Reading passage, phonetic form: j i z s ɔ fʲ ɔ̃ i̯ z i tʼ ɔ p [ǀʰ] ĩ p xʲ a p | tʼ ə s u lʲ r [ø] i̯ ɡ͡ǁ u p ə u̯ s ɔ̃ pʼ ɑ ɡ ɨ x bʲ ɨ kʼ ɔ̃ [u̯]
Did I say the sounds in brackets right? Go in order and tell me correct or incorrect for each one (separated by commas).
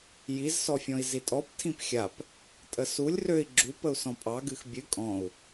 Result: incorrect, correct, correct